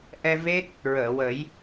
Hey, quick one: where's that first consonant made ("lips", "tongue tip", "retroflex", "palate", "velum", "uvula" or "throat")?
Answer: throat